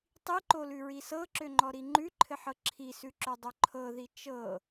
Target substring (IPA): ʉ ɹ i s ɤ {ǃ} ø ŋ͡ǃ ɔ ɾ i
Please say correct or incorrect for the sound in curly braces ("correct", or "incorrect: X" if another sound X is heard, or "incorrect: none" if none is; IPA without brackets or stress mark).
incorrect: ǁ